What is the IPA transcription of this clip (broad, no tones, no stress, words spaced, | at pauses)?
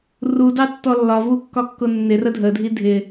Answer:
rudɑtːɔ lːɒvukːɒkːʊ nːɪrə dʱədʱi dʱɪ